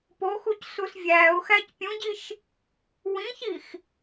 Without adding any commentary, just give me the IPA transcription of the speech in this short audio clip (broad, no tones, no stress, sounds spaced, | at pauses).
p o x u c s u s vʲ æː ʊ̯ x æ c pʲ ũ ɟ i ʃ | w ĩ ç i x